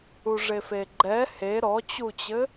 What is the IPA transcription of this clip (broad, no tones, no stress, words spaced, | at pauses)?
uʐefeɡ͡ǃɛ he ɾɔt͡ɕut͡ɕɘ